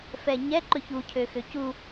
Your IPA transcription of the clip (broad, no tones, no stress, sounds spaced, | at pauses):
f ɛ ɲ ɛ ǃ ɵ ç u cʰ ø x ø c u